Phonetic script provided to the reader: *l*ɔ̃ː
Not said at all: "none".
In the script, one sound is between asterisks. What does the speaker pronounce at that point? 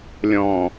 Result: lʲ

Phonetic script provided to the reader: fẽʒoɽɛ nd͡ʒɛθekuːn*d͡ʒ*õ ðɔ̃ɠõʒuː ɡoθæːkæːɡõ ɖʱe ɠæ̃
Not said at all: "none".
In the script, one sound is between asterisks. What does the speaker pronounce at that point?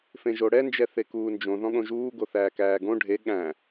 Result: d͡ʒ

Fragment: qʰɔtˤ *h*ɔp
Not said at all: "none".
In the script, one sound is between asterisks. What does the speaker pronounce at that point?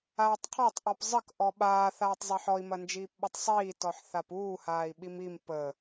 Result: ʔ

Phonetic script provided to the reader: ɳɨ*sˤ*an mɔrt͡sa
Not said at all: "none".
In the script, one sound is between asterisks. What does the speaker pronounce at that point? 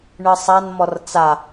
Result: sˤ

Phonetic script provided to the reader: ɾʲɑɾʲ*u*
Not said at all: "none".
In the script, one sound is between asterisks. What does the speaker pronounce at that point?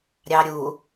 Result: u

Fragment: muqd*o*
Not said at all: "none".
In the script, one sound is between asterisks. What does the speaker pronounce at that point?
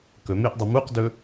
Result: ɵ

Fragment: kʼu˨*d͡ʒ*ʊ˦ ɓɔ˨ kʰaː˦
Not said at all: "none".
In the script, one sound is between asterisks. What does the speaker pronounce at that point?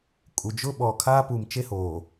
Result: d͡ʒ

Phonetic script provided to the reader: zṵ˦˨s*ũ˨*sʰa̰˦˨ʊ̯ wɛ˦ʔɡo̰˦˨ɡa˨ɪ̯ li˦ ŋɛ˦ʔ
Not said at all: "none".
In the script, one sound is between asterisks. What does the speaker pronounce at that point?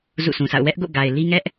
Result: ũ˨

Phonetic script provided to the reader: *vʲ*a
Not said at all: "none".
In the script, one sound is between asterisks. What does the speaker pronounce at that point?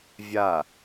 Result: vʲ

